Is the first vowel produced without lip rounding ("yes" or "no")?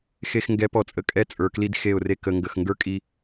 yes